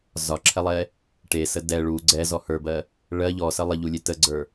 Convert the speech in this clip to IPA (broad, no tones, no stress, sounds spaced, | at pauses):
z ɒ ǁʰ ɛ lˠ ɛ | ʈ e s ə d ɛ ɭ u ɡ͡ǀ ɛ z ɔ h ə˞ b ɜ | ɭ ɜ ʎ ɔ s ə lˠ ə ʎ u lʲ e t ə ɡ͡ǀ ə˞